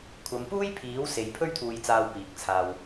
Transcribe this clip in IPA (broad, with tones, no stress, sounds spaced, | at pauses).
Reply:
kʷʰ ɐ˨˧ m p uː˥ j pʰ iː˨˥ w s e˨˧ j pʰ ɵ˥ ɥ t̪ʰ uː˧ j t͡s aː˧ w p iː˨˥ k̚ t͡sʰ aː˧ w